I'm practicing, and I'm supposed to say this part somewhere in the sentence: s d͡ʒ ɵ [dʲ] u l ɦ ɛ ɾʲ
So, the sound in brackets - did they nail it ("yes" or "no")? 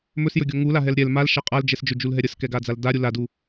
no